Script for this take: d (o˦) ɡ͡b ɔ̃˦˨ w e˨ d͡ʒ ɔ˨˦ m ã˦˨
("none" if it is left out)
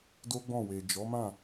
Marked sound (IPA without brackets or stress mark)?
o˦